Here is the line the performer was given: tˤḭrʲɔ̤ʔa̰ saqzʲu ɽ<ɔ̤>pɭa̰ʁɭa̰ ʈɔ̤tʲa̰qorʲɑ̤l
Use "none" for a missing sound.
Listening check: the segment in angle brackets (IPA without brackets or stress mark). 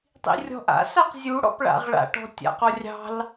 ɔ̰